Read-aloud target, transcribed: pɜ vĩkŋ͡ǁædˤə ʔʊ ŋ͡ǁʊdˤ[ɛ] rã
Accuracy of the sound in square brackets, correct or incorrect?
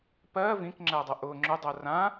incorrect: ɜ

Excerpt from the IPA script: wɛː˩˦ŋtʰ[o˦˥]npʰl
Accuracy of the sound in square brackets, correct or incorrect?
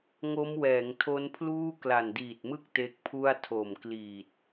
correct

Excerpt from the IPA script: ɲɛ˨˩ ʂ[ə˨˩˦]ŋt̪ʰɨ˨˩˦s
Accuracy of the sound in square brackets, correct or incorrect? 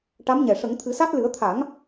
correct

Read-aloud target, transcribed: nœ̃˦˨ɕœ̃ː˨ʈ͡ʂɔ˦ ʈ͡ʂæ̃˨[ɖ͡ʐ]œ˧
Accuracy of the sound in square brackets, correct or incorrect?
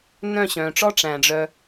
correct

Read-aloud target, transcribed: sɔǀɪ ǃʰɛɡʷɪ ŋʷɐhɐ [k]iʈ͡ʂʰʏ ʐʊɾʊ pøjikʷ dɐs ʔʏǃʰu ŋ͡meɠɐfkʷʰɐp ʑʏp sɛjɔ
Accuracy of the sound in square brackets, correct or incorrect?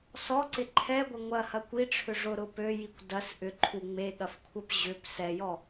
incorrect: kʷ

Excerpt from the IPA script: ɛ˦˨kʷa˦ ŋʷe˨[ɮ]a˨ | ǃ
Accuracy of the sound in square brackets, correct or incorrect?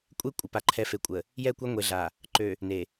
correct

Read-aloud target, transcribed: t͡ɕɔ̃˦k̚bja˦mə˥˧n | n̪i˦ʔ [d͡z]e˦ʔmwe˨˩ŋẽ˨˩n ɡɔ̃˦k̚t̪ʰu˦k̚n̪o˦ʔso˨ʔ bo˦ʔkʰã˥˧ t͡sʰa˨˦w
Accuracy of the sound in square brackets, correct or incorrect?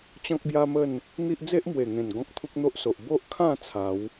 correct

